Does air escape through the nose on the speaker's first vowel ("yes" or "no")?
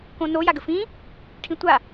yes